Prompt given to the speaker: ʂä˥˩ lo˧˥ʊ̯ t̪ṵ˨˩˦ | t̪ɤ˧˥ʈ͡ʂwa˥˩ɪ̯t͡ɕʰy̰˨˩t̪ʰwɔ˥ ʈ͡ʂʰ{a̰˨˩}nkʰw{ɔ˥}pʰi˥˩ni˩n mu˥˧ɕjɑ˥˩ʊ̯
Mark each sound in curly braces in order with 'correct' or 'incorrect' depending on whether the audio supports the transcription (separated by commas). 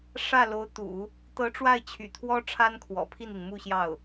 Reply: incorrect, incorrect